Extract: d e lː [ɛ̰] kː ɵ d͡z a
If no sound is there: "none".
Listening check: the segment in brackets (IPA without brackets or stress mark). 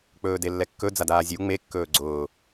ɛ